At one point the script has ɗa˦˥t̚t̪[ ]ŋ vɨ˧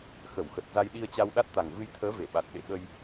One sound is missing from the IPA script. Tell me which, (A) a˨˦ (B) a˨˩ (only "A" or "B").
B